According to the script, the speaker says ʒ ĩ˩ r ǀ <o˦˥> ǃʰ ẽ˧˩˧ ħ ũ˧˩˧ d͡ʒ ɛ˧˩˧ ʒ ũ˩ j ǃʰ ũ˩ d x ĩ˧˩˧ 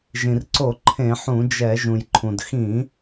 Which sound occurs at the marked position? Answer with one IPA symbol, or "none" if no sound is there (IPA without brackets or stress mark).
o˧˩˧